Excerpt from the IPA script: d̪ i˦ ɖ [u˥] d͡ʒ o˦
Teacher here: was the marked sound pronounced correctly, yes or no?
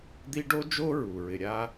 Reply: no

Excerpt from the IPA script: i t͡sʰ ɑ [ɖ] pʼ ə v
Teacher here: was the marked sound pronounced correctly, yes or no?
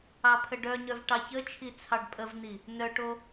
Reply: yes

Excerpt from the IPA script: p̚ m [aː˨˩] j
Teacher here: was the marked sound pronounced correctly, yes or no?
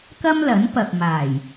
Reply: yes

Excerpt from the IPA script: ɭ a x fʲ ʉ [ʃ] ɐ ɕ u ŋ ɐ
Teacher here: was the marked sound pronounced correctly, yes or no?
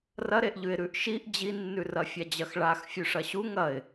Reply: no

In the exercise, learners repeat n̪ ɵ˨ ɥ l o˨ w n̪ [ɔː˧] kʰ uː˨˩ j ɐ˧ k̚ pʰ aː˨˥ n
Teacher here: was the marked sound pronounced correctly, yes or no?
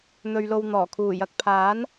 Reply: no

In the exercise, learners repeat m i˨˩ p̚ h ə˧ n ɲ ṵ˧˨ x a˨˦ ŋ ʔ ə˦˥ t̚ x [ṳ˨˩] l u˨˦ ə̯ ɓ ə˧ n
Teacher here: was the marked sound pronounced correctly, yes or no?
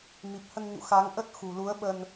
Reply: yes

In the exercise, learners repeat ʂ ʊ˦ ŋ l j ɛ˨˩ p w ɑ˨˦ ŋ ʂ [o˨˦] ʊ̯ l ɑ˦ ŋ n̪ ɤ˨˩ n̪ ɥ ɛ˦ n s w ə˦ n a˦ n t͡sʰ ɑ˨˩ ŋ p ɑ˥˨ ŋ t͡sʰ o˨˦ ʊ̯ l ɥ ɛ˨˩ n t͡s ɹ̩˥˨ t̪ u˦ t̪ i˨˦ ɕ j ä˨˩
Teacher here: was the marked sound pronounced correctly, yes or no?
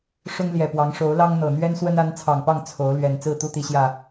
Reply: yes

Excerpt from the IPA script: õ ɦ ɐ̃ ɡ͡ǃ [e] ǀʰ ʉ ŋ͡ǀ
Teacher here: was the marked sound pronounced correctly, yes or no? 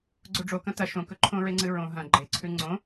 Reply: yes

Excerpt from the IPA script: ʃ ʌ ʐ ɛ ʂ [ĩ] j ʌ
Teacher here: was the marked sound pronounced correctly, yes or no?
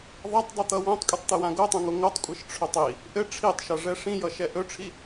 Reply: yes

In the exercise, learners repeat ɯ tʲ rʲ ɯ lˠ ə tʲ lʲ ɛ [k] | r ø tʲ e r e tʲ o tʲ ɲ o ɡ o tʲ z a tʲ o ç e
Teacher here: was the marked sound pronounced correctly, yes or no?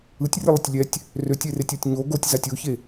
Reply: no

